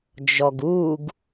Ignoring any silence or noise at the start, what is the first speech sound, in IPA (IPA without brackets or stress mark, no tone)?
d͡ʒ